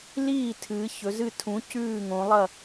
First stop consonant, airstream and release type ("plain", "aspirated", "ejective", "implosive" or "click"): aspirated